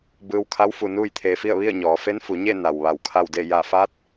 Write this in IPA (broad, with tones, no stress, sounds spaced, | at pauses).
b ɯː˧ w kʰ a˧˥ w f u˧ n uː˥˨ j t̪ʰ eː˧ f i˥˨ ə̯ ʋ i˥˨ ə̯ ɲ ɔː˩˧ f e˧˥ n f u˩˧ ɲ e˥˨ n a˩ w ʋ a˧˩ w kʰ a˥˨ w d e˥˨ j a˧˩ f a˧˥ t̚